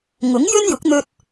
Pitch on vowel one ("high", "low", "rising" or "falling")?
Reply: rising